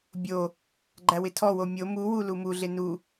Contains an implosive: no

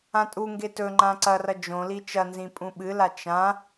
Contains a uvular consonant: no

